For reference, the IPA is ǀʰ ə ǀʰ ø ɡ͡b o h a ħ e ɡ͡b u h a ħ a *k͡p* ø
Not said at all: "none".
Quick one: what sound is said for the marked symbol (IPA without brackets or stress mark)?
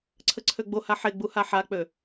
k͡p